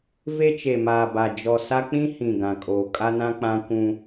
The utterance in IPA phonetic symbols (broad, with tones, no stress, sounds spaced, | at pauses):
v e˦ t͡ʃ e˨ m aː˨ b a˨ d͡ʒ ɔ˨ s a˦ k͡p ĩ˦ h ĩ˨ ɡ ã˨ kʼ oː˨ kʼ a˦ n ã˦ k͡p ã˦ kʷ ũ˦